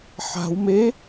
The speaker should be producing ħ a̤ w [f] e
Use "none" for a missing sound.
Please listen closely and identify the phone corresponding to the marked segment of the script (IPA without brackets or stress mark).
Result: m